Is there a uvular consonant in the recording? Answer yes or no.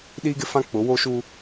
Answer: no